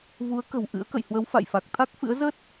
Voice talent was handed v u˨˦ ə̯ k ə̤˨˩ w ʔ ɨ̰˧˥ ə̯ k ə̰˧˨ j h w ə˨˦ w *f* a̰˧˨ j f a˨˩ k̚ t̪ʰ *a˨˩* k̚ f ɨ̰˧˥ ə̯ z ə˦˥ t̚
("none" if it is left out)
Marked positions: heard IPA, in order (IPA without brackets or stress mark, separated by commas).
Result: f, a˦˥